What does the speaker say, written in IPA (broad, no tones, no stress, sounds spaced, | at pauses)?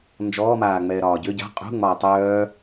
n d͡ʒ ɔː m aː ŋ͡m ɛː ɾ ɒː ɟ ʏ ɟ a̤ qʼ ṳ ŋ͡m ɒː tˤ œː